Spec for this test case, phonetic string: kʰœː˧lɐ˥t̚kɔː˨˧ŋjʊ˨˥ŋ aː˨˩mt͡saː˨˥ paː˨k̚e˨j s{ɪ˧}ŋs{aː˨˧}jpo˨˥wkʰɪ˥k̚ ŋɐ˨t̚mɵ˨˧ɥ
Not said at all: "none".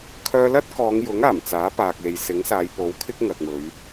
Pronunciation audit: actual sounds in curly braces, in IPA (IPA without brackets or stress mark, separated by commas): ɪ˨˥, aː˨˧